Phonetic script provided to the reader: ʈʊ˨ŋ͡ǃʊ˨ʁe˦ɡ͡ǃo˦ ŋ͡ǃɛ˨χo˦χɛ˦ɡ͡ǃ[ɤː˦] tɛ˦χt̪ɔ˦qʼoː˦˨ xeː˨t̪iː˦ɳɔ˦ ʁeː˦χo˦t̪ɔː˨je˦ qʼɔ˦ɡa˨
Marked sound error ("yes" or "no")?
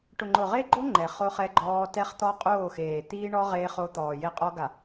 yes